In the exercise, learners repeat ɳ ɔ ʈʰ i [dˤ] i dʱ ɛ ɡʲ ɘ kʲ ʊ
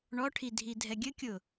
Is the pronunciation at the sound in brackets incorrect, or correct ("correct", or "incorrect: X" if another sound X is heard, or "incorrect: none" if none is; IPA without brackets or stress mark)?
incorrect: dʱ